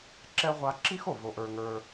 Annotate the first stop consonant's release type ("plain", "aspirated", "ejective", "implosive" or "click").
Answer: click